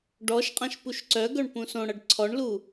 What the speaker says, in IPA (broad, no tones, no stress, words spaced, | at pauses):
ɖɔʃqʼãʃ puʃǀœɡœɳ pũsõɽʌɖ ǀʰɔɳlu